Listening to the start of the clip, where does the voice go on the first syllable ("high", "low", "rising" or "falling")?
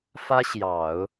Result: high